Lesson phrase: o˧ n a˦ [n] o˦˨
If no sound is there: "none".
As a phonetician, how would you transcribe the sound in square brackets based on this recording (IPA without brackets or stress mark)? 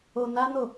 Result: n